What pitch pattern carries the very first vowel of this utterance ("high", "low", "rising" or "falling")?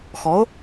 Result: rising